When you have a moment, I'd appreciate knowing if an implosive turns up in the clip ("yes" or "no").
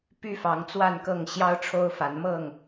no